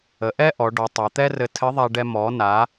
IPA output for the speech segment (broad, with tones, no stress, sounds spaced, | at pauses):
ə˩˧ ʔ ɛ˥ ʔ ɔ˩˧ ɖ ɔ˩˧ tˤ ɛ˩˧ t̪ ɛ˥ r ɘ˧ tʰ ɘ˧˥ ðˤ a˧ ɖ ɛ˧ m ɔ˩˧ n a˩˧